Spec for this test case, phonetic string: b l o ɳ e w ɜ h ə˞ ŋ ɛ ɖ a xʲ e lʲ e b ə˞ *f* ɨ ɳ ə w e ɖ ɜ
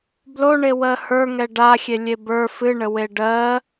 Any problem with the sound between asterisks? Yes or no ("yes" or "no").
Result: no